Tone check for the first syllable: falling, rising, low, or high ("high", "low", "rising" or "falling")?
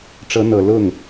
rising